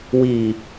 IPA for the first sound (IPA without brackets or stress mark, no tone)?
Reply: w